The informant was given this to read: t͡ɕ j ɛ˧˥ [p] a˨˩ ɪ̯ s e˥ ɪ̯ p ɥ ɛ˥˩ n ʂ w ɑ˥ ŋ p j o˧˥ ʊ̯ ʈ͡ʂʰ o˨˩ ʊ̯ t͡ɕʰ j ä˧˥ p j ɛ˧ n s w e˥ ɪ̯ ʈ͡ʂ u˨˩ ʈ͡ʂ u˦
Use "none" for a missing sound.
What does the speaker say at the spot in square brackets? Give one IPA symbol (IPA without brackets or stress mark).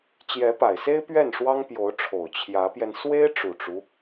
p